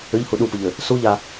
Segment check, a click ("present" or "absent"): absent